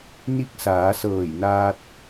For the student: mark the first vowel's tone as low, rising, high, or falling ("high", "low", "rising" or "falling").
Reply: rising